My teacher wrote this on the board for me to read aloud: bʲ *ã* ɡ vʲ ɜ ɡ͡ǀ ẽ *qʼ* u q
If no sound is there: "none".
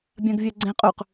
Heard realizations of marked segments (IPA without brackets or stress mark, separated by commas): ã, qʼ